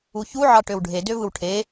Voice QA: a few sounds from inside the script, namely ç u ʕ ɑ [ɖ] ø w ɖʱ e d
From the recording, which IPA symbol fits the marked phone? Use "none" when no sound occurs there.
ʈ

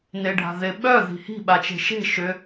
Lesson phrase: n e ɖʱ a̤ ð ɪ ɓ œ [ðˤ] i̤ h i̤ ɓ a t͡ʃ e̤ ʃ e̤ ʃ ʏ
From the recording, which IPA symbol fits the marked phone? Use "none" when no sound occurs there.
ð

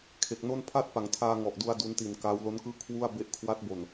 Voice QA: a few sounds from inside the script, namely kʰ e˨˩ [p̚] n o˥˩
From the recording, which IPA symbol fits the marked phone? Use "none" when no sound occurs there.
k̚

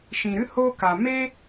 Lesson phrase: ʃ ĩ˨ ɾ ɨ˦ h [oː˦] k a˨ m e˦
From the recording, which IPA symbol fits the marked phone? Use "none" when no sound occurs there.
oː˦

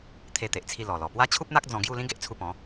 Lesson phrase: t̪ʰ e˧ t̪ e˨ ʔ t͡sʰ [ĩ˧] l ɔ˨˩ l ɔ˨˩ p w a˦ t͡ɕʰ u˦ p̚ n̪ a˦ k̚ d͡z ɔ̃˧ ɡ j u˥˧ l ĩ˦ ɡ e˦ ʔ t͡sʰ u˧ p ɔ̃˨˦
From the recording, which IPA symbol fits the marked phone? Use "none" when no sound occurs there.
i˧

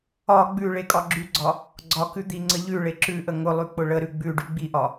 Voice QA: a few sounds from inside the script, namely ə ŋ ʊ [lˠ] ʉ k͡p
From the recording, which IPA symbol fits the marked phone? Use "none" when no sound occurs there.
lˠ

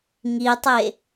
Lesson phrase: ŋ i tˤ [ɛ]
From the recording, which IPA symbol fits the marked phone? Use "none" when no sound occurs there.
e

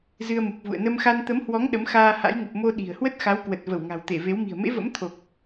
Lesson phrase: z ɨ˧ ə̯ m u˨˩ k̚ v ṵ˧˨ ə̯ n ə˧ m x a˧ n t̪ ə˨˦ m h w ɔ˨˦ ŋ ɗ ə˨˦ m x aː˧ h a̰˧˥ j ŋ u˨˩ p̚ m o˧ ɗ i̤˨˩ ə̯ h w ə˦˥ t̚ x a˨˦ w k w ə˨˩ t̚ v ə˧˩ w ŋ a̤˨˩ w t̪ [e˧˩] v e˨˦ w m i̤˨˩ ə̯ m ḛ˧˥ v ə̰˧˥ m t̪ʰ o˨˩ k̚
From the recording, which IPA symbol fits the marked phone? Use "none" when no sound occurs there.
e˧˩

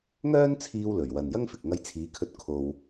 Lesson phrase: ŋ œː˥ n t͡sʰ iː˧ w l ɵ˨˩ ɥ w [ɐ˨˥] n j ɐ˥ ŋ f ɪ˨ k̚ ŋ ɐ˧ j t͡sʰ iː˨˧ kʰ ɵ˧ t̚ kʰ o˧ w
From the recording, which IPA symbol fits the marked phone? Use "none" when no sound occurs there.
ɐ˨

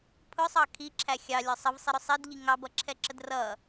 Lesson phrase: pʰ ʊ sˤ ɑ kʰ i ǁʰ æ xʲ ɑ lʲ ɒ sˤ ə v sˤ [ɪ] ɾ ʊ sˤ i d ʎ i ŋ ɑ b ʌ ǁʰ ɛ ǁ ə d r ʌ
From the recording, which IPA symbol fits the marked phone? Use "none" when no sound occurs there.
ɪ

